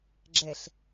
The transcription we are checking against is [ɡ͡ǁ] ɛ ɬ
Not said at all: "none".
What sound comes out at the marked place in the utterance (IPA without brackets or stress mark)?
ɡ͡ǁ